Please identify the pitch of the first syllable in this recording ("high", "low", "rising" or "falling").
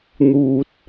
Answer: low